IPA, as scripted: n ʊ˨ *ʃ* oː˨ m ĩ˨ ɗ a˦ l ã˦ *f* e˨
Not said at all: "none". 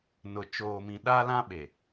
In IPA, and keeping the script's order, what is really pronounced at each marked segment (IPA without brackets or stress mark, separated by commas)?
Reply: t͡ʃ, ɓ